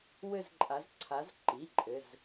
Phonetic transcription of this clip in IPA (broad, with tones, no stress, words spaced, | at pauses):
wɘ˥˧zǃʼa˨˦z ǀʰa˨˦zǃi˩˧˩ ǃʼɘ˩˧˩z